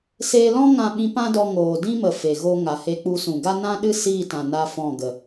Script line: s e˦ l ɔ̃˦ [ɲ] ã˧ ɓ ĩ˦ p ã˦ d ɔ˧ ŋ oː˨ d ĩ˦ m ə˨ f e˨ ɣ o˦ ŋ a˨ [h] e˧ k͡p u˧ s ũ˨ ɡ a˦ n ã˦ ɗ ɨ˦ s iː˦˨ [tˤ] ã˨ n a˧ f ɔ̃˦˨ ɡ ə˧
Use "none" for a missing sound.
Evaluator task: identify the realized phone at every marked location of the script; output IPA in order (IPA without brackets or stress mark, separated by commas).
ŋ, h, t